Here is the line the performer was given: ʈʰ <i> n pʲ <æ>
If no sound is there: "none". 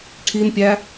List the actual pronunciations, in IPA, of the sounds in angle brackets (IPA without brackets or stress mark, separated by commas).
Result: i, æ